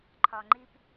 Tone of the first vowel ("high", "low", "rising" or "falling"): low